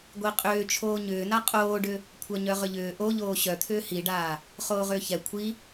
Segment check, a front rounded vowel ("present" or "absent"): present